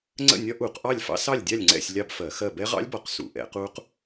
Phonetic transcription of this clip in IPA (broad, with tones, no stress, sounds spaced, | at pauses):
ŋ͡ǀ ə̰˥˨ nʲ ɒ˦˥ ʔ u˧˩˧ q ʔ ɑ˥˨ lʲ f ɑ̰˦˥ s ɑ˥˨ lʲ dʲ ɑ˥˨ lʲ ŋ͡ǀ ɛ̰˥˨ sʲ lʲ ɑ˥˨ b f ɜ˧˩˧ x ɜ˥˨ b ɛ˦˥ ʁ ɑ̰˦˥ lʲ b ɒ˧˩˧ q s ṵ˧˩˧ ʔ ɛ̰˧˩˧ q u˦˥ q